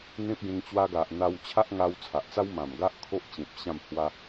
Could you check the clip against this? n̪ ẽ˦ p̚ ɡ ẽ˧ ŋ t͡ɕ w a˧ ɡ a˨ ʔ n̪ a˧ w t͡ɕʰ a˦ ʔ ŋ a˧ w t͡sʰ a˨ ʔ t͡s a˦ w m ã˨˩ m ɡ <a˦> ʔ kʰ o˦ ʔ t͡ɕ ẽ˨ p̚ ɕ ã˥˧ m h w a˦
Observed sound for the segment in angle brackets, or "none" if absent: a˦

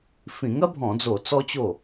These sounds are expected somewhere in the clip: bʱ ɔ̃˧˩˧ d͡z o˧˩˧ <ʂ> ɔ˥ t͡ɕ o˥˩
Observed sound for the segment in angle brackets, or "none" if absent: t͡s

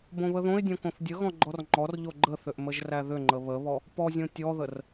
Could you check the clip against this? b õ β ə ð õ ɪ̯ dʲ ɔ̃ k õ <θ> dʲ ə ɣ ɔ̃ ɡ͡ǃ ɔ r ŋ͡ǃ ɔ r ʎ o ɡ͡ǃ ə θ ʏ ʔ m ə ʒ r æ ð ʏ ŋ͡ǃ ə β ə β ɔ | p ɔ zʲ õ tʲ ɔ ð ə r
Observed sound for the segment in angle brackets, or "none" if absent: θ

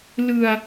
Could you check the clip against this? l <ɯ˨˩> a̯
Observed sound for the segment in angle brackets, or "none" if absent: ɯ˧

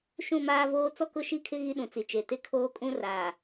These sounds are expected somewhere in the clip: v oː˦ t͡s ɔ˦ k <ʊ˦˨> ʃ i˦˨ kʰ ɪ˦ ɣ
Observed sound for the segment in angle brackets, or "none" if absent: ʊ˦˨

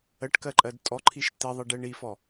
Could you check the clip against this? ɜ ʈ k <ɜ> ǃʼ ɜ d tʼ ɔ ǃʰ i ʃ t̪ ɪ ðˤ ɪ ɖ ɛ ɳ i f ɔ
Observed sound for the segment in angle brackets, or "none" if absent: ɜ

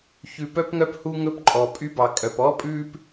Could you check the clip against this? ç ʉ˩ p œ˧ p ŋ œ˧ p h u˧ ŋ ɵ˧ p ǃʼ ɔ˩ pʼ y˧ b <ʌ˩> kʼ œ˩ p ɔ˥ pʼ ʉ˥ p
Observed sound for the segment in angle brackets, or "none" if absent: ɑ˩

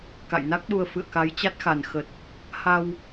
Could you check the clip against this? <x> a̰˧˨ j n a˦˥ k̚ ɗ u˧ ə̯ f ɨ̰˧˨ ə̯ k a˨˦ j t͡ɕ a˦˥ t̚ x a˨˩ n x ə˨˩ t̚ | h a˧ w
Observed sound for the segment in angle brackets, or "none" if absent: k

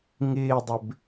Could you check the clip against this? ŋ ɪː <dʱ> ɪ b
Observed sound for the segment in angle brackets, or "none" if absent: dˤ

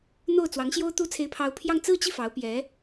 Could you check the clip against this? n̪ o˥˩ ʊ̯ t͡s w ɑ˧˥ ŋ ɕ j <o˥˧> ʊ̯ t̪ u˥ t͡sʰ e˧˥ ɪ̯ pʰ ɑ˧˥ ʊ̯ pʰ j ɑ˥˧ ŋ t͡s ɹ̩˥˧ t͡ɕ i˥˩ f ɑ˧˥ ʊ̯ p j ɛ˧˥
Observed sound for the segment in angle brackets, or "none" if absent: o˥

